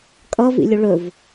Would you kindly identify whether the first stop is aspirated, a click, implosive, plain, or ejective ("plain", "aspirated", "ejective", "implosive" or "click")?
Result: ejective